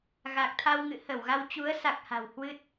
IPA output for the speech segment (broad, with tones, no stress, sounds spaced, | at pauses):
ɣ a˨˩ k̚ t̪ʰ a˧ w ŋ ɨ̰˧˨ h ə˧˩ w ɣ a˧ w t͡ɕ u˨˦ ə̯ s a˨˩ k̚ h a̤˨˩ w h w ɨ˦˥ t̚